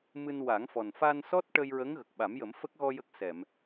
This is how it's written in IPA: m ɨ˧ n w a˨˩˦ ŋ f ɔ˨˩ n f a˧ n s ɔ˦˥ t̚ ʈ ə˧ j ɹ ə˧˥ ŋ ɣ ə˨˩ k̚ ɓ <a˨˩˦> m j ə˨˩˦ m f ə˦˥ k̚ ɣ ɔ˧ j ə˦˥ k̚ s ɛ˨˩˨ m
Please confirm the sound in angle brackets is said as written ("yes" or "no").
yes